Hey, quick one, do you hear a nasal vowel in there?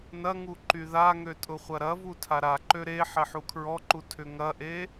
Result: no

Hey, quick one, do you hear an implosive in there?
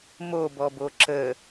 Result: no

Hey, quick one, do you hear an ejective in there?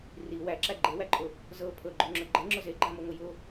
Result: yes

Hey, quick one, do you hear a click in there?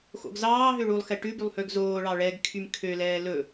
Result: no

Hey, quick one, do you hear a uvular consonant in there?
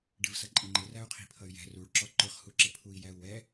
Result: yes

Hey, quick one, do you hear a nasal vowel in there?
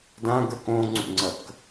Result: yes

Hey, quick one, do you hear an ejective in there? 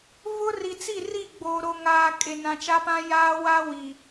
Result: yes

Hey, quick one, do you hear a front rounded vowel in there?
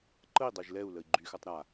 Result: yes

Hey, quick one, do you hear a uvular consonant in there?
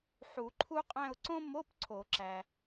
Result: yes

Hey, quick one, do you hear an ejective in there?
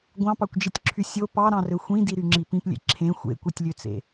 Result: no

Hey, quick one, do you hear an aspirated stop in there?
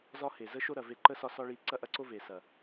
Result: no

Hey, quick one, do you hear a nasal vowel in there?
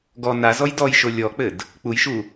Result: no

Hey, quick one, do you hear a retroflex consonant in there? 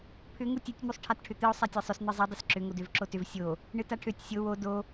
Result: yes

